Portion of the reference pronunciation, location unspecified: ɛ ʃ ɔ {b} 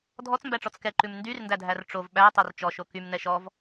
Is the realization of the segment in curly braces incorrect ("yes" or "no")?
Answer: yes